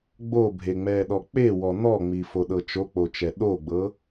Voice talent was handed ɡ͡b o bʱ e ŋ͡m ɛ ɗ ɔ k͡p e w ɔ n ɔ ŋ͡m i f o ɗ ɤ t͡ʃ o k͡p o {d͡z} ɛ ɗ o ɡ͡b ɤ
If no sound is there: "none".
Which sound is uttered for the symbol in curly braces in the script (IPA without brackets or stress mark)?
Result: t͡ʃ